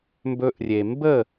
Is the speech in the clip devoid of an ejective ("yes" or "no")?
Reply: yes